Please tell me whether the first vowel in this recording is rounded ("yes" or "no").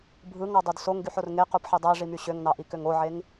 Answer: no